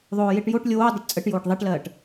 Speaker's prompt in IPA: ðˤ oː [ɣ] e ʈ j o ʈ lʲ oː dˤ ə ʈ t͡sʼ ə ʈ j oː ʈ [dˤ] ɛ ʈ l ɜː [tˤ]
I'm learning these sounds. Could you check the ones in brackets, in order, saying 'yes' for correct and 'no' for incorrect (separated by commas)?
no, no, no